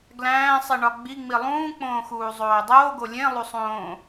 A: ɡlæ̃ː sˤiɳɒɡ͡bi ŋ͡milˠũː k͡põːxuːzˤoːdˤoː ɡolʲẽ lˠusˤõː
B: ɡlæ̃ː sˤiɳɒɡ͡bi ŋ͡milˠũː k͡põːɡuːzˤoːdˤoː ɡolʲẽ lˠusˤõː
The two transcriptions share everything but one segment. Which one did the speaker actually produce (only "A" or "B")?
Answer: A